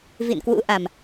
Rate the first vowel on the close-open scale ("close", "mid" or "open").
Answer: close